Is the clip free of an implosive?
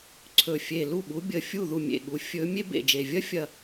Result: no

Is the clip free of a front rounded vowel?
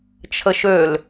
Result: no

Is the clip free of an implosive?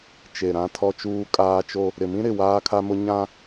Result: yes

